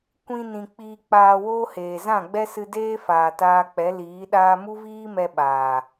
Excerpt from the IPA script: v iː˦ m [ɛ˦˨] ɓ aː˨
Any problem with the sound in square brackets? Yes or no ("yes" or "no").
yes